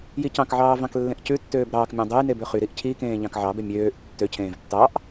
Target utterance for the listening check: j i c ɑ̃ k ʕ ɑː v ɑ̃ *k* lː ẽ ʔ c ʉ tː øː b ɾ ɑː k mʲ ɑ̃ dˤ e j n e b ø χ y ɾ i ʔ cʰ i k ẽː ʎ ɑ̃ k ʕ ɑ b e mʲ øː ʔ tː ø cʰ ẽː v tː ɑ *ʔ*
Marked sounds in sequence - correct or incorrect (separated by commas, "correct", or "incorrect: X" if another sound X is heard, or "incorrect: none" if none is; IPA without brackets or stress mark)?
correct, correct